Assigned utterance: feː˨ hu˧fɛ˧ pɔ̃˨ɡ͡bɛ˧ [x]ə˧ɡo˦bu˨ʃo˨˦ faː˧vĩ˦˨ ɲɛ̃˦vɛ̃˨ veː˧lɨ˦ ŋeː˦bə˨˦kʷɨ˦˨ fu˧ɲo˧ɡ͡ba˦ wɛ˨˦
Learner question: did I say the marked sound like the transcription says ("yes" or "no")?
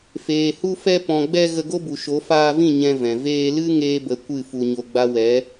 no